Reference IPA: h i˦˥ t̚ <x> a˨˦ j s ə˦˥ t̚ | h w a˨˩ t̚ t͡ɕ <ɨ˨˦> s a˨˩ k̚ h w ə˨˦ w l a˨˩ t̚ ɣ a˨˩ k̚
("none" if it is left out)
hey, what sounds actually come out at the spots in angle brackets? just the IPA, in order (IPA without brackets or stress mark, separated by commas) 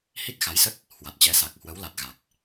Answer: x, ɛ˨˦